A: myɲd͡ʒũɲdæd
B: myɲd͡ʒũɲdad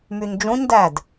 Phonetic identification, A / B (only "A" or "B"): A